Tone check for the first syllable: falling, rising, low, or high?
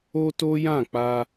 high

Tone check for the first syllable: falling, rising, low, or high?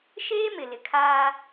high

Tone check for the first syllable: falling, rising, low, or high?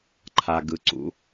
low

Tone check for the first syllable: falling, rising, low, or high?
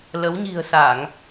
rising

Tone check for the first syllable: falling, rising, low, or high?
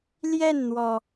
falling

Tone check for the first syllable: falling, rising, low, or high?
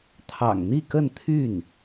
low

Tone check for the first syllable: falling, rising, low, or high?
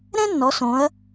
high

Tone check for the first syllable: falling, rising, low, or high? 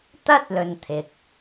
high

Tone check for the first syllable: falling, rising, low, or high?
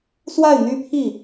falling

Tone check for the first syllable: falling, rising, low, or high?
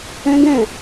high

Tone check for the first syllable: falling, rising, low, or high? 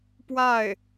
falling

